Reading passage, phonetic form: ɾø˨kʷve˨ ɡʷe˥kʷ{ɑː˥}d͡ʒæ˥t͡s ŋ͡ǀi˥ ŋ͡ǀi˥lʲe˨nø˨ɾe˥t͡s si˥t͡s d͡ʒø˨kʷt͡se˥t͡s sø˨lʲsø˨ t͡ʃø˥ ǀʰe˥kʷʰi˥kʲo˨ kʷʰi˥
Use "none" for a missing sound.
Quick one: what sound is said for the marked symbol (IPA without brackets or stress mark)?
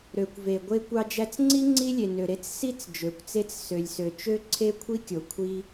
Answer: ɑ˥